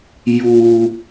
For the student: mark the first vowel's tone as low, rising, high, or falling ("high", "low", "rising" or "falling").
high